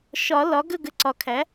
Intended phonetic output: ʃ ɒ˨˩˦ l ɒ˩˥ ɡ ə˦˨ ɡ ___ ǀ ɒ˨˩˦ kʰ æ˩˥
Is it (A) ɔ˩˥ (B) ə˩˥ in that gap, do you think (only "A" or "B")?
B